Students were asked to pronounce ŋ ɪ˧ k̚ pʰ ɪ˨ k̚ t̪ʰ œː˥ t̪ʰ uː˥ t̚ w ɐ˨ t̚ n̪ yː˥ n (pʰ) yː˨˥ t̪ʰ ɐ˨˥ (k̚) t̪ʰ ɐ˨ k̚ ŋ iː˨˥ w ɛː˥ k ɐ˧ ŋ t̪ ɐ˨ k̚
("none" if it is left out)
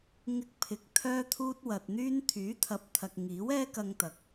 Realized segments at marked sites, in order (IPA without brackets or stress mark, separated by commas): t̪ʰ, p̚